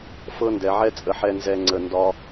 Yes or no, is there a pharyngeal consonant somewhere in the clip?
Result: yes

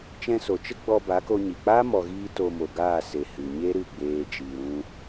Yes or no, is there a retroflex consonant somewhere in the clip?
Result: no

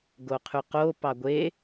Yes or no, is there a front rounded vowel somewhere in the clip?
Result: yes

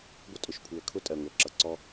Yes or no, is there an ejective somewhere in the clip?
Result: yes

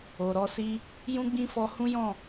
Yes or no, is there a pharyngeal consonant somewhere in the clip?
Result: no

